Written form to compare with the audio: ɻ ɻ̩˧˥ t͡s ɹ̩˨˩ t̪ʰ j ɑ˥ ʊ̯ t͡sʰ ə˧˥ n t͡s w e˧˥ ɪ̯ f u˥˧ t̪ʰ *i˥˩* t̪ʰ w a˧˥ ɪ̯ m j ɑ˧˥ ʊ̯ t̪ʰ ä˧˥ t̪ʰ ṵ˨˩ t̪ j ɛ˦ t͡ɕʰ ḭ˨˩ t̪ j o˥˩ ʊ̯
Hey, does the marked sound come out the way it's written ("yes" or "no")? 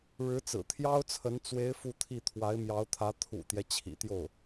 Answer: yes